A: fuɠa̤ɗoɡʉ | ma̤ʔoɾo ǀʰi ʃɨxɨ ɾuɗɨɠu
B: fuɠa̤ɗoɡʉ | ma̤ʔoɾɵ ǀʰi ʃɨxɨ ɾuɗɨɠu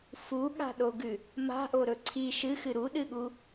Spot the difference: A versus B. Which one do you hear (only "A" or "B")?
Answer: B